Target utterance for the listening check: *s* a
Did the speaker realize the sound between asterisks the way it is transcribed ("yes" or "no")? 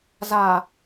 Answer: no